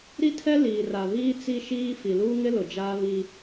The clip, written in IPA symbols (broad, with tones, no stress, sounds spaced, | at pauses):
ɾ i˦ tʰ ɛ˦ l iː˨ r a˨ β iː˦ t͡s i˦ ʃ iː˦ f i˨ l uː˦ ŋ ɪ˦ l ʊ˨ d͡ʒ aː˦ β i˦